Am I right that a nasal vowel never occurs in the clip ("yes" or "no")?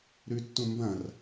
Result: no